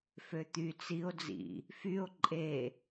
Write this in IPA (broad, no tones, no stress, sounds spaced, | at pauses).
f ø t̪ y t͡s i o̯ d͡z ḭ | f y o̯ ǃʼ e